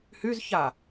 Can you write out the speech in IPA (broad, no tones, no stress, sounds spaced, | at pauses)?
h y z ç a